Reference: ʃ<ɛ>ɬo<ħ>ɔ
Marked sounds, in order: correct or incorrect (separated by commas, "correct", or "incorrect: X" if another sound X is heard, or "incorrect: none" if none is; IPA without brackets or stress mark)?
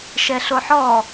correct, correct